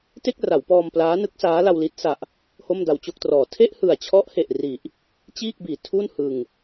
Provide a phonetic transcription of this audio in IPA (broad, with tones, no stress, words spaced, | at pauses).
te˥˩k̚ra˩˦wpɔː˧m plaː˦˥nɯ˦˥k̚saː˦˥ la˧wli˦˥t̚ sa˨˩ʔ | ho˥˩mda˧wt͡ɕo˥˩k̚trɔː˨˩ tʰe˥˩ʔhɯ˨˩a̯t͡ɕʰɔ˦˥ʔhe˨˩ʔ ri˨˩ʔ | t͡ɕiː˥˩k̚biː˩˦ tʰu˥˩nhɯ˧ŋ